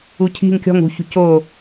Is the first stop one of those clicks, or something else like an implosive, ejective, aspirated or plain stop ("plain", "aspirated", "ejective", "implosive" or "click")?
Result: aspirated